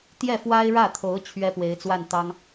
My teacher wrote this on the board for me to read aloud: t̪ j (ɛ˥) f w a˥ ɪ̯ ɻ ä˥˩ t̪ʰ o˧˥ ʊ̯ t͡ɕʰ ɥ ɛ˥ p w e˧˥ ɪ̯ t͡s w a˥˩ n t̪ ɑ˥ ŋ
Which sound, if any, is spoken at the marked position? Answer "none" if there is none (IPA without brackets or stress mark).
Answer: ɛ˥˩